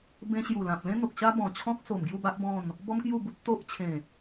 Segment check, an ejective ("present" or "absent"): absent